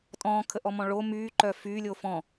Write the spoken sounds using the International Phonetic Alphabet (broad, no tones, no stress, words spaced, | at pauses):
tʼɔ̃ːkʰəʔɔmɔ̃ ɭo myːǃœː fyːlʲoː fɔ̃